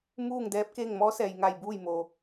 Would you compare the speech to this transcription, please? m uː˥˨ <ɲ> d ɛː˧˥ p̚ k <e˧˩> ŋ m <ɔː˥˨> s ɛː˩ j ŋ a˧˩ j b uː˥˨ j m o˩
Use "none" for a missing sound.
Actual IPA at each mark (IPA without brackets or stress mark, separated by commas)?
ŋ, e˥˨, ɔː˧˥